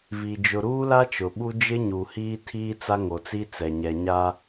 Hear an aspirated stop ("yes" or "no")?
yes